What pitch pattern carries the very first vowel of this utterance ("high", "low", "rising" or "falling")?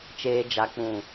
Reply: low